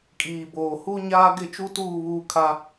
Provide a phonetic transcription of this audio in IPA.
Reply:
kʼ iː˨ b oː˨ h u˦ ɲ aː˦ ɡ ɪ˦˨ t͡ʃ u˦ t uː˦˨ β uː˦ kʰ a˦

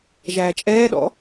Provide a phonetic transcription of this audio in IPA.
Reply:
ʒ æː t͡ʃʼ ɛː ɗ ɔ̰

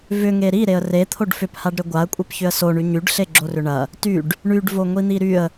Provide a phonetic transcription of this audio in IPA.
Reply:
v ʏ ŋ e ɾ i ɾ e ə̯ r e t̪ʰ o ɖ f ʏ p h a ɖ ɾ ʏ ɡʷ a ə̯ kʷʼ e p ç ʏ ə̯ s o ɳ y ɲ y ɖ ɬ e ɡ͡ǁ o r ʏ ɳ ɐ | t y ɖ | ɳ y ɖ v o ŋʷ i n̪ i ɾ y ə̯

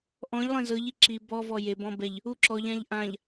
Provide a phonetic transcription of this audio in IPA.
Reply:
ʔ ɔ̃ ʎ lˠ ẽ z ɤ ʎ i ǁ i b ɔ v ɔ j e b ɔ̃ b ɛ ʎ | u ǁ ɔ ʎ ã ʎ ʔ ã ʎ

